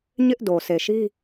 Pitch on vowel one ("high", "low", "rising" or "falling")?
high